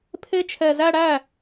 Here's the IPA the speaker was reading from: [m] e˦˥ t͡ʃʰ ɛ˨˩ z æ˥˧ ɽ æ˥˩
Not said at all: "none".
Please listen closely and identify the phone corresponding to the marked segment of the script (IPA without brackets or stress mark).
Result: pʰ